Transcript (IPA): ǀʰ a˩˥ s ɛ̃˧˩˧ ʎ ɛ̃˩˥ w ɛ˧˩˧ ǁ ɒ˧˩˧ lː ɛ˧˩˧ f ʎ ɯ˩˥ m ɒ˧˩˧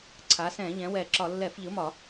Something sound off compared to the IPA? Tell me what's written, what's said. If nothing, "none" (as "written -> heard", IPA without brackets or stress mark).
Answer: none